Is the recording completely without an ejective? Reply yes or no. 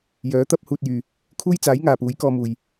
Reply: yes